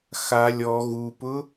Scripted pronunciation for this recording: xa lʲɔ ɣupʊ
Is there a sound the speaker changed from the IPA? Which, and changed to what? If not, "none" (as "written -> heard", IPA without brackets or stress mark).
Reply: none